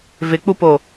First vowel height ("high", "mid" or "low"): high